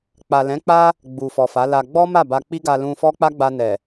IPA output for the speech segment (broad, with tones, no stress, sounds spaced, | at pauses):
k͡p a˨ l ɛ̃˨˦ k͡p a˦ | ɡ͡b u˨ f ɔ˨ f a˨˦ l a˧ ɡ͡b ɔ˦ m a˦˨ b a˧ k͡p i˦ ɡ a˧ l ũ˧ f ɔ˦ k͡p a˦ ɡ͡b a˧ n ɛ˨